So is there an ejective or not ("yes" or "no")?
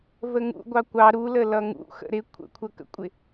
yes